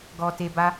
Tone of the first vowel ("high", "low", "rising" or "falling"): low